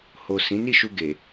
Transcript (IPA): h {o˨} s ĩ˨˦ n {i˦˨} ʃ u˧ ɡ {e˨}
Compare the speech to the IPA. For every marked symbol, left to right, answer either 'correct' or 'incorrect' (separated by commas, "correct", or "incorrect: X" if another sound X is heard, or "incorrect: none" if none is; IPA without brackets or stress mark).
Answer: correct, correct, correct